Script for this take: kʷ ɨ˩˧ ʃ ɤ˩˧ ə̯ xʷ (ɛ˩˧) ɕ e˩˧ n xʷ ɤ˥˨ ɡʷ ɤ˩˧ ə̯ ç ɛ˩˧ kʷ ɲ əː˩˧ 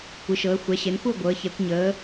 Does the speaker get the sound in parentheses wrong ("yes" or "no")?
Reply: no